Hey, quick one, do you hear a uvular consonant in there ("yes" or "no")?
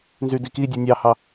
no